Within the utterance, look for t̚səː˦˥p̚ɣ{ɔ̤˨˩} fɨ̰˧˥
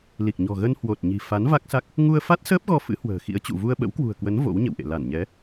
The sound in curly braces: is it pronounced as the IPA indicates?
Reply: no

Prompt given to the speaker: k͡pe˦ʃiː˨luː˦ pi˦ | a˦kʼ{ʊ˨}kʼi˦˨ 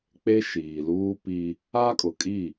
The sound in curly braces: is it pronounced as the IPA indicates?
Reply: yes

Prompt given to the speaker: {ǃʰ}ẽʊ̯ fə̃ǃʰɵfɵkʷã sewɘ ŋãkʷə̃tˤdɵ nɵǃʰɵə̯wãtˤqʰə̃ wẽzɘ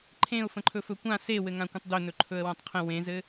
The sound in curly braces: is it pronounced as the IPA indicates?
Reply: yes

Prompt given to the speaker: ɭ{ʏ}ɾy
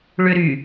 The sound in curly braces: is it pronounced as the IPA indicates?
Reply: yes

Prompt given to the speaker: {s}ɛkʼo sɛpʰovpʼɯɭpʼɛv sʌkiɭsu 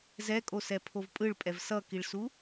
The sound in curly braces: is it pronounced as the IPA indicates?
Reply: no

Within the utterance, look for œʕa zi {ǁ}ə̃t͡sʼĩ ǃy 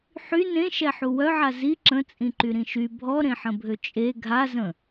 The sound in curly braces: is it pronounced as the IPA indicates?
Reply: yes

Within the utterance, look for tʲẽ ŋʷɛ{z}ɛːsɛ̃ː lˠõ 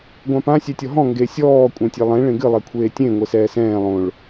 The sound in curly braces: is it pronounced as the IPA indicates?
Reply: no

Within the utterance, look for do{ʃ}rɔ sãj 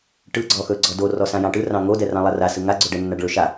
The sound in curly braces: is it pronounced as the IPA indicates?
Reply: no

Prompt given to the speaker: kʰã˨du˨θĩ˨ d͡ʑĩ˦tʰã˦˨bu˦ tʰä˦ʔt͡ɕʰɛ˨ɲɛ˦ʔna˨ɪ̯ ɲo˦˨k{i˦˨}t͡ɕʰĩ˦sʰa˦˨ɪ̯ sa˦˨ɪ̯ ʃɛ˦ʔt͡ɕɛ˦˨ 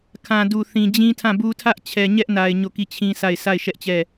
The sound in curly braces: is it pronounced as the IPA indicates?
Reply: yes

